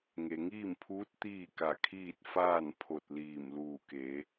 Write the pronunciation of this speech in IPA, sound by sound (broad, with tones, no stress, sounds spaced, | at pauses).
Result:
ŋ e˩ ŋ iː˥˨ m pʰ uː˧˥ t̚ t̪ iː˥˨ k a˧˩ kʰ iː˥˨ t̚ f aː˥˨ n pʰ o˧˩ t̚ l iː˧˩ m l uː˧˩ k e˩˧